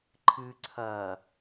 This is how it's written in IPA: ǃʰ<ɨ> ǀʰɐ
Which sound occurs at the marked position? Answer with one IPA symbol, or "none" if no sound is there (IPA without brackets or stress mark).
ɨ